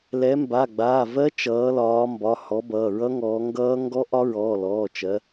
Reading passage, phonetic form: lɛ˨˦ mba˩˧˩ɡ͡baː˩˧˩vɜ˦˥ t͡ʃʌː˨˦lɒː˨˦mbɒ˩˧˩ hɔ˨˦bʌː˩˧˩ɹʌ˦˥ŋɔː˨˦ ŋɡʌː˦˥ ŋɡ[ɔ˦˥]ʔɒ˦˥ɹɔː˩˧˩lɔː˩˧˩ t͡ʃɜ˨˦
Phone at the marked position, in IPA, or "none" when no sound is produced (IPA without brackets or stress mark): ɔ˦˥